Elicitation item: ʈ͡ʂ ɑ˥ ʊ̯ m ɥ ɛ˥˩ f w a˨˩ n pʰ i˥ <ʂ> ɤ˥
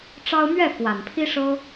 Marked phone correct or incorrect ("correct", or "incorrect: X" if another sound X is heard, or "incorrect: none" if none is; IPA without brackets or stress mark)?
correct